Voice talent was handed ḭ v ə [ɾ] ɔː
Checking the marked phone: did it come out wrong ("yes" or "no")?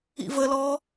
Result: yes